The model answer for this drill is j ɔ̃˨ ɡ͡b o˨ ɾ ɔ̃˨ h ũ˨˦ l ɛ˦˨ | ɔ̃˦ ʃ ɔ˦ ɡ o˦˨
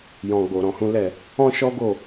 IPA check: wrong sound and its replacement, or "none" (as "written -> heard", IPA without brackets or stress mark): none